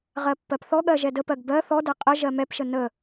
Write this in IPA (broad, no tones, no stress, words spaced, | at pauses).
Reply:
ʁɜpːɜpθɔɠɜ ʒɛdəpɜɡ bɜ θɔdɛ qʼə ʒɜmɛpʃə nə